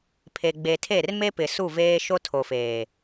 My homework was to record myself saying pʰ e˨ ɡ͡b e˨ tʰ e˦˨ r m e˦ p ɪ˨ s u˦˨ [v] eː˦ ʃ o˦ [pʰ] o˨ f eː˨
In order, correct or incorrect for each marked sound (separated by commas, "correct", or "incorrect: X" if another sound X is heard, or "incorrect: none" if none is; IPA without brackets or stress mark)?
correct, incorrect: tʰ